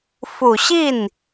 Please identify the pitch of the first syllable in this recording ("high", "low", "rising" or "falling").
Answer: low